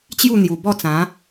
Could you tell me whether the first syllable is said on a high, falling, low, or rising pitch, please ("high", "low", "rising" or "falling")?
falling